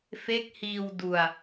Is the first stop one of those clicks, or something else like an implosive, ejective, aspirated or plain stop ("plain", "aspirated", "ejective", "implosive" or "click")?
plain